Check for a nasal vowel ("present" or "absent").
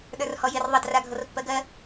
absent